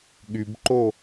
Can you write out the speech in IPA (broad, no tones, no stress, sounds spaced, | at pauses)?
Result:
ɠ y b ǃ o